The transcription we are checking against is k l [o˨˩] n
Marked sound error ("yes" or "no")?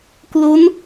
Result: yes